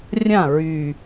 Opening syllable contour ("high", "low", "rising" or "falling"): falling